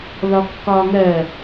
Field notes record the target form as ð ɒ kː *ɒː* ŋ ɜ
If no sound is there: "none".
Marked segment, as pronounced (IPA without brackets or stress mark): ɒː